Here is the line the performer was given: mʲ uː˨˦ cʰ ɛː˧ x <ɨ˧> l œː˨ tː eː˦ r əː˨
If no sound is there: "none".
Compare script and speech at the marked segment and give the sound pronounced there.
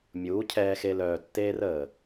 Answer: e˧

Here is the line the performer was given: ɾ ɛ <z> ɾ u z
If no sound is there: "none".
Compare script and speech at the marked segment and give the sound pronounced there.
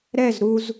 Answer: z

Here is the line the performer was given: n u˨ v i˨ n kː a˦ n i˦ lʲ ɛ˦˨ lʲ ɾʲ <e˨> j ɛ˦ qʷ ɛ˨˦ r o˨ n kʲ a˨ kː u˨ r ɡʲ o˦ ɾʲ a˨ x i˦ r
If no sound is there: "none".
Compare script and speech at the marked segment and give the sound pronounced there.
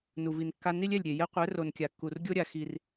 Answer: e˨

